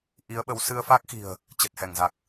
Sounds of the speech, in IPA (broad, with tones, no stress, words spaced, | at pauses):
ʔi˨˦ə̯ɓə˨˦w sɨ˧ə̯fa˦˥k̚xi̤˨˩ə̯ | t͡ɕə˨˩t̚hɛ˧˩ŋza˨˩k̚